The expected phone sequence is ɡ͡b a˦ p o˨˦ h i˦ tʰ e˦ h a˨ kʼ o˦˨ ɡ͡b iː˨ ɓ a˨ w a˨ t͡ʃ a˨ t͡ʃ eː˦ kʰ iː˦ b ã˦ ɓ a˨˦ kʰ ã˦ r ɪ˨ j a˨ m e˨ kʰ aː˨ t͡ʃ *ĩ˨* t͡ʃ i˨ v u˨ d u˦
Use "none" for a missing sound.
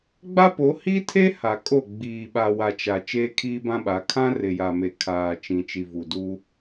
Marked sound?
ĩ˨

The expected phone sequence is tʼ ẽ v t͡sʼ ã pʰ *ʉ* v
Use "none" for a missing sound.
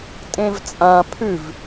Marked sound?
ʉ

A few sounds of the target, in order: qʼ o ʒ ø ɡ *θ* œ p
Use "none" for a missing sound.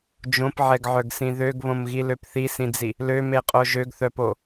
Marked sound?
θ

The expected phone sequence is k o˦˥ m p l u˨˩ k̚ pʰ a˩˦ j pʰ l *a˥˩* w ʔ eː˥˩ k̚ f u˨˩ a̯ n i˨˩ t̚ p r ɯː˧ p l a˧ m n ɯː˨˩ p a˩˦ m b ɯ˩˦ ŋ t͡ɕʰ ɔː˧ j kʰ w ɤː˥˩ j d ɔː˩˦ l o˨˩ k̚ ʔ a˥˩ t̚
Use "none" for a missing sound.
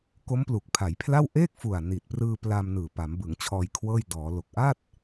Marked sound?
a˥˩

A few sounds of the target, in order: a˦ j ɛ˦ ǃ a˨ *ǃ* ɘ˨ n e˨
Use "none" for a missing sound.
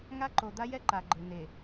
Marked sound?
ɡ͡ǃ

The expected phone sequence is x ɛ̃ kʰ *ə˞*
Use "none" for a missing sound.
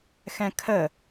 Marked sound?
ə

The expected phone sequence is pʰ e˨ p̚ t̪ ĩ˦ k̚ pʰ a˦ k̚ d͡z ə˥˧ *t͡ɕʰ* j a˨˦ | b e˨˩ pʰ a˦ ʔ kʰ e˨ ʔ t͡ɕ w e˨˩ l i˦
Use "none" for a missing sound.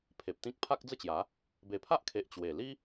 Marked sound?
t͡ɕ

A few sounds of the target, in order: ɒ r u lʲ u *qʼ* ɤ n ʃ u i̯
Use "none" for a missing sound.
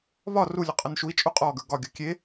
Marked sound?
qʼ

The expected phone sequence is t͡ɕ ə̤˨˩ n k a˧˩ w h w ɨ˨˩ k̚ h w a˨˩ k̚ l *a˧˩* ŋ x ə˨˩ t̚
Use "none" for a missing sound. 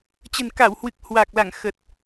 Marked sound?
a˧˩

